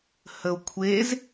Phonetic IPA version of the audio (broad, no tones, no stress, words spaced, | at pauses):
həo̯kʷʰez